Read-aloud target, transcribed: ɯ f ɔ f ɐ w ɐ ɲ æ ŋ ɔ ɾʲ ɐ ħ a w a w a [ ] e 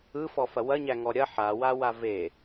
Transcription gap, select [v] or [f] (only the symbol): v